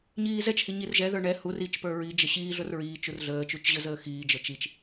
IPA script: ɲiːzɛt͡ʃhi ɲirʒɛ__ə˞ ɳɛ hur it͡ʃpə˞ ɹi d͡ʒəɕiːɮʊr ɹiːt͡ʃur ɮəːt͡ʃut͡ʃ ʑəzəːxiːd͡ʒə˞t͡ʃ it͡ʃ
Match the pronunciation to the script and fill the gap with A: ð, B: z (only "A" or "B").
A